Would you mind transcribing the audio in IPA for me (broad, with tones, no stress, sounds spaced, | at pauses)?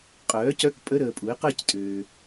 qʼ œː˩˥ c œ˧˥˧ k pʼ ə˧˥˧ ɾ əː˨ pʼ u˩˥ e̯ q əː˦˨ c tʼ øː˨